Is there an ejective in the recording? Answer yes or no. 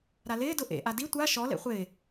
no